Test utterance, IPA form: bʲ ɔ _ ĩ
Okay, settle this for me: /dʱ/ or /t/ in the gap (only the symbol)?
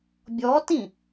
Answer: t